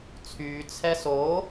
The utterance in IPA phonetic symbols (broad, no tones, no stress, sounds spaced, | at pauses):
t͡sʰ yː t͡sʰ ɛ s oː